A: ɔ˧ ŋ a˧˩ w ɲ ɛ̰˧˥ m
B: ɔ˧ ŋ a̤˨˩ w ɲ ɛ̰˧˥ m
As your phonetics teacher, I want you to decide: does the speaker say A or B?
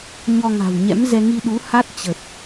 B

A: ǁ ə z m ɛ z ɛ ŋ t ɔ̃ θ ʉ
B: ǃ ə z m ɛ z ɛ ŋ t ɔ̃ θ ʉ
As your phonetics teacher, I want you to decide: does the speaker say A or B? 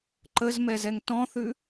B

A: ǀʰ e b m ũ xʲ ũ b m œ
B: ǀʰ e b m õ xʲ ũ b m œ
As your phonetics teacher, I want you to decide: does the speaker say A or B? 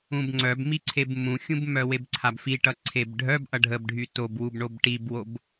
A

